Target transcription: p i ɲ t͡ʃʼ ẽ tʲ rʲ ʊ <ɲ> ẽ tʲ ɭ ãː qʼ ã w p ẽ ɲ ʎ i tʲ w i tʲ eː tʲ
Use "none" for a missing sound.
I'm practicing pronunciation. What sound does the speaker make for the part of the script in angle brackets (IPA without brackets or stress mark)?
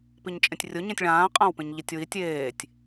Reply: ɲ